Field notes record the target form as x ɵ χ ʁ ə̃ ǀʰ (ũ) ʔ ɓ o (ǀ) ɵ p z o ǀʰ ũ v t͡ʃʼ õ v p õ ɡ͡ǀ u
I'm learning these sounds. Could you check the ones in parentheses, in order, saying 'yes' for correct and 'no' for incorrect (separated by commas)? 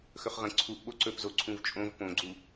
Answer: no, yes